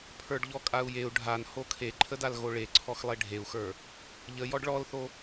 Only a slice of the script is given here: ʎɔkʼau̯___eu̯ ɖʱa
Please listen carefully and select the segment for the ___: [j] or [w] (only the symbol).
j